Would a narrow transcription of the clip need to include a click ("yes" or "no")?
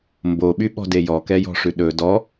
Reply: no